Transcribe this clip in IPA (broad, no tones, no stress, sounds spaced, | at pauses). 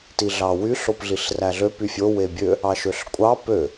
t i ɮ ɑ w y ɬ o p ɮ i ɬ r æ ɮ ø p y fʲ o w e bʲ ø | ɑ ʃ ø ɬ kʷʼ ɑ p ø